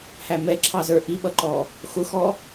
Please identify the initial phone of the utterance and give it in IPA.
h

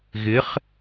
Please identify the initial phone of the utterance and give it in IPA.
ɣ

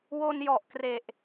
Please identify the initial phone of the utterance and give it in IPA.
w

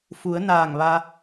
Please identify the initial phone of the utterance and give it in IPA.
f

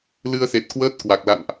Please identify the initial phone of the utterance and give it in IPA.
l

